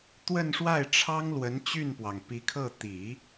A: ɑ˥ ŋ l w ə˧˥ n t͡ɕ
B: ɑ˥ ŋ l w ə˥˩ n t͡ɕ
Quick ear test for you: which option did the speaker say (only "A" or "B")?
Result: A